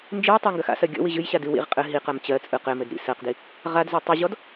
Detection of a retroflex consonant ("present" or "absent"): absent